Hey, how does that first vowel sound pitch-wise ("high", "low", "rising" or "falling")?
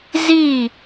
falling